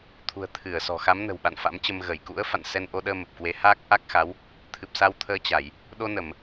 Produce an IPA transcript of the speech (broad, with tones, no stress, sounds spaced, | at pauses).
t̪ʰ ṳ˨˩ ə̯ t̪ʰ ɨ˧˩ ə̯ s ɔ̤˨˩ x a˨˦ m n ə̤˨˩ w ɓ a̰˧˨ n f a̰˧˥ m t͡ɕ ə˧ m ɣ ə˧˩ j k ṵ˧˥ ə̯ f a̰˧˨ n s ɛ˧ n ʔ o˧ ɗ əː˧ m ə˨˩ p̚ k w e˨˦ h aː˦˥ k̚ ʔ a˦˥ k̚ x a˨˦ w | t̪ʰ ɨ˨˩ p̚ s a˧ w t̪ʰ əː˧ t͡ɕ a˧˩˨ j | ɗ o˧ n ə˧˩˨ m